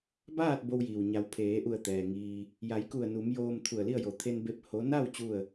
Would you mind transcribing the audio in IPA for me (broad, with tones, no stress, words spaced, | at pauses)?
baː˥˨t̚ bo˧wjiː˩w ɲa˩˧wpʰeː˩˧ ʔu˧˩ə̯t̪ɛː˩ ŋiː˧ | ja˩˧jku˧˩ə̯nu˩˧m joː˧mt̪ʰu˧˩ə̯li˥˨ə̯jo˧˩ t̪ʰe˧nbe˧p̚ ho˧˥ na˥˨w t͡ɕu˥˨ə̯